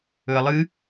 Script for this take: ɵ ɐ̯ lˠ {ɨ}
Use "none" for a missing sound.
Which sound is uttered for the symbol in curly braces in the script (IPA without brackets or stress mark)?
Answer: ɨ